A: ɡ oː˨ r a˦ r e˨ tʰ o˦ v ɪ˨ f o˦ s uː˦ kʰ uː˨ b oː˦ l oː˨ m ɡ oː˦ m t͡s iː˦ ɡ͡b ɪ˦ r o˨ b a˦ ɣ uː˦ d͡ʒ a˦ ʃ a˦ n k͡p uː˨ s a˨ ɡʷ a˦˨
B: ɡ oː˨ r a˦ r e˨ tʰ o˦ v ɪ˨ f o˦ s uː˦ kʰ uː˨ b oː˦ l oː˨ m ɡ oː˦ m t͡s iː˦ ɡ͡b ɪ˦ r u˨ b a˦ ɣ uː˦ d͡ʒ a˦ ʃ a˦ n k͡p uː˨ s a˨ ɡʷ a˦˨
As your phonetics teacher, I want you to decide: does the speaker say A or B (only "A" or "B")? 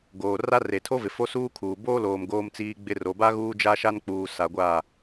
A